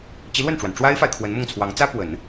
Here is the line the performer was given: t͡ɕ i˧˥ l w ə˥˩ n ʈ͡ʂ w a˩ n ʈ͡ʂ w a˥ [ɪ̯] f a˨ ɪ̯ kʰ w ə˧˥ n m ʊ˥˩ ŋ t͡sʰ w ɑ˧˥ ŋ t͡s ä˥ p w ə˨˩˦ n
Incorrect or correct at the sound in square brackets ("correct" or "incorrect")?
correct